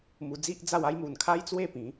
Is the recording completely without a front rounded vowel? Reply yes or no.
yes